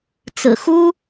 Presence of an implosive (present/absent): absent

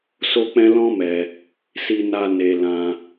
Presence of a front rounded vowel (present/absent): absent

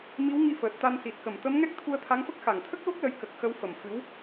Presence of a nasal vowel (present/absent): absent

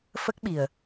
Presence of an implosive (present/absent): present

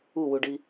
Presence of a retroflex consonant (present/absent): present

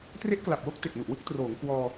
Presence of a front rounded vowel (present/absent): absent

